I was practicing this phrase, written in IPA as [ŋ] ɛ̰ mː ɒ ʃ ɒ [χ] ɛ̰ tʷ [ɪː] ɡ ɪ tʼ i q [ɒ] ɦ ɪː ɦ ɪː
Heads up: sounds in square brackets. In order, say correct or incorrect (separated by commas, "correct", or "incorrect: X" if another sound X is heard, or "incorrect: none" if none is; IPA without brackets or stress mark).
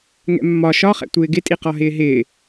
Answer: correct, correct, correct, correct